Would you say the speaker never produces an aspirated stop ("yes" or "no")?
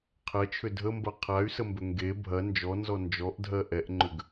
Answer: no